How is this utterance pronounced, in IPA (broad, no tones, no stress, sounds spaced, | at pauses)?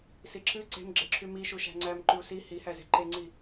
s i ǁ ɨ ǀ e̤ m ɡ͡ǁ e ǁʰ y m i ʃ u ʃ æ̤ ŋ͡ǀ æ m ǃ y u̯ s i h i h æ z e̤ ǃ e ŋ͡ǀ i